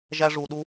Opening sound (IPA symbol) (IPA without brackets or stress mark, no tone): ʒ